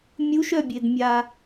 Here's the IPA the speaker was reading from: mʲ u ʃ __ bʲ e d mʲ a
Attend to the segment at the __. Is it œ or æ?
œ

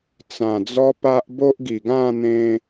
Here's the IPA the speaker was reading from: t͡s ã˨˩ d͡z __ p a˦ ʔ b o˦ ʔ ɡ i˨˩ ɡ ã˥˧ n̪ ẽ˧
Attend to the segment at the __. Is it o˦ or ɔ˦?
ɔ˦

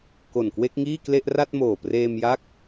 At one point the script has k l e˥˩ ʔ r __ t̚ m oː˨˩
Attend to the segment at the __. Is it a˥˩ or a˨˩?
a˥˩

